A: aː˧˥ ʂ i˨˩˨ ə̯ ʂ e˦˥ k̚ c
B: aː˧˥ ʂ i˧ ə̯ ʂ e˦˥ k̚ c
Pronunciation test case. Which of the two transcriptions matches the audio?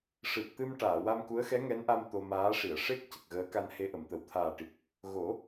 A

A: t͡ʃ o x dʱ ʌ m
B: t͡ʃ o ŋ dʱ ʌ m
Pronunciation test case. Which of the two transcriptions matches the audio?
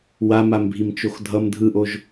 A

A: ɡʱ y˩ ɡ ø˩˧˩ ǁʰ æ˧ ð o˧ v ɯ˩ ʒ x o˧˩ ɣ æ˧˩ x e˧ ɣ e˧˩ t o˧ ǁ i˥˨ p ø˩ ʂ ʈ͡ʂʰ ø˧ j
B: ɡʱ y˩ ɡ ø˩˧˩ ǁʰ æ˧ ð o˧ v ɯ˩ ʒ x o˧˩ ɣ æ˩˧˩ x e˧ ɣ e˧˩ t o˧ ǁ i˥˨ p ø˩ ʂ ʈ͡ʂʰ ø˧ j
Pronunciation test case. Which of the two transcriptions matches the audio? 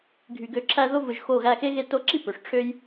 A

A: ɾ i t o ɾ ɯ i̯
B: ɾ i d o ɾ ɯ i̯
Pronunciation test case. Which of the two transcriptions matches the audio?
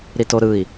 A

